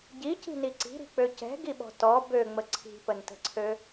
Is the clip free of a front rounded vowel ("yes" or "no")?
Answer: no